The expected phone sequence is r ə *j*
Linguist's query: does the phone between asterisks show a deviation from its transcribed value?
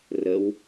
yes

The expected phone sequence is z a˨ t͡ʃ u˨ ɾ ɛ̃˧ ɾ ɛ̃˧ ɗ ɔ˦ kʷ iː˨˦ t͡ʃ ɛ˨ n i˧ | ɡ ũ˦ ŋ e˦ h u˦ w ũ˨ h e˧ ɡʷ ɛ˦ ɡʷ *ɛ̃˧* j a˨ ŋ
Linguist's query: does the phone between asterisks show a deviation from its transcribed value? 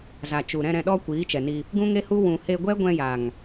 no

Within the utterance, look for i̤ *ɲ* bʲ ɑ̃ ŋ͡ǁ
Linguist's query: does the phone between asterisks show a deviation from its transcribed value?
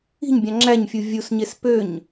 no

